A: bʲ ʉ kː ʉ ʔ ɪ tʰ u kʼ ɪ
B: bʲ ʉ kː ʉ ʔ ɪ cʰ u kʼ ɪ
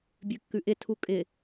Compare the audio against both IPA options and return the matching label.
A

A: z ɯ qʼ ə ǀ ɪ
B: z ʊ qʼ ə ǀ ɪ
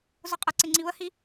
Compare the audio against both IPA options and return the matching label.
B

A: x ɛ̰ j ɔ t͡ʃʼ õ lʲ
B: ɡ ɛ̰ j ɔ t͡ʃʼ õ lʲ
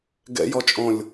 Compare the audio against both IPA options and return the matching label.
B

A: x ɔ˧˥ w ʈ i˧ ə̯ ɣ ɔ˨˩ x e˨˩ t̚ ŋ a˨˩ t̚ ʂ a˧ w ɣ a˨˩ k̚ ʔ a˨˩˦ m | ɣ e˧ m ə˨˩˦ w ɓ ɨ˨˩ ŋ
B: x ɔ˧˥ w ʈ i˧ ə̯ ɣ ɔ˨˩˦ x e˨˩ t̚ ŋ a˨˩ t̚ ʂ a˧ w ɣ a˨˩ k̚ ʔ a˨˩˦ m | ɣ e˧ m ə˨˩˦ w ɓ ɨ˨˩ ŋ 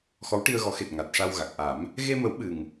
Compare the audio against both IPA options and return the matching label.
B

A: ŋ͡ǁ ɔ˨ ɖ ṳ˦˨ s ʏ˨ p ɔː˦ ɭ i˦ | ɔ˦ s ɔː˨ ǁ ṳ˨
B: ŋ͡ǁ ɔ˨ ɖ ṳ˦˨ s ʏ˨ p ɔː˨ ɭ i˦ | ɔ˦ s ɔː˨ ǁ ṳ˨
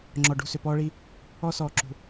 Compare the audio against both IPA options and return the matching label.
A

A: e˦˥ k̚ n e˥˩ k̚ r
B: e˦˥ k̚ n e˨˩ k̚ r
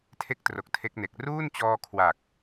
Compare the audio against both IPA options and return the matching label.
B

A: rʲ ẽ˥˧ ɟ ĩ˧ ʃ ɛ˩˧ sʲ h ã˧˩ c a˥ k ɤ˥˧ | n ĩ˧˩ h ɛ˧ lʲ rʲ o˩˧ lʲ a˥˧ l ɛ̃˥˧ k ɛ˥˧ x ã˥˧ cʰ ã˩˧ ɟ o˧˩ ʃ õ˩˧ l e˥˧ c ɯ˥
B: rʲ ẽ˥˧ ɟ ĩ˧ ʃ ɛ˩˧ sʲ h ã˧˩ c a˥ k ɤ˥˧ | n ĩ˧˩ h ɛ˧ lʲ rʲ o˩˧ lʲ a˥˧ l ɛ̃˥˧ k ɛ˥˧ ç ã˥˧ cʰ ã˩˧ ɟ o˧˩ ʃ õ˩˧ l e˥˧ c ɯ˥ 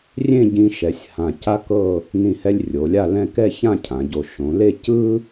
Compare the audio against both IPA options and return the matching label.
B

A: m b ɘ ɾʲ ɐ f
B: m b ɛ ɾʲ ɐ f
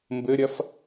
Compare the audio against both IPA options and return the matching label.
A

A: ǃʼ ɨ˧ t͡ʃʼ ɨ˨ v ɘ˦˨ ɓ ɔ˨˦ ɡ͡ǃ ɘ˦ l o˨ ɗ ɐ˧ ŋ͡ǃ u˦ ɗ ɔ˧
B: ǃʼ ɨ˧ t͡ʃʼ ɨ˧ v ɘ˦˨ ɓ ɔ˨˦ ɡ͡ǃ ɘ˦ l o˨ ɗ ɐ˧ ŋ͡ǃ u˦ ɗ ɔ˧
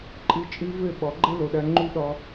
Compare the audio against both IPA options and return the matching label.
B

